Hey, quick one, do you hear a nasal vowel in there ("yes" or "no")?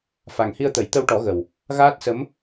no